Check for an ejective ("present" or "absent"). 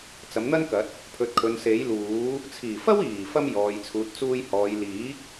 absent